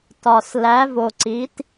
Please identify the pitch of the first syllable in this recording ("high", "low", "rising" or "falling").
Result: low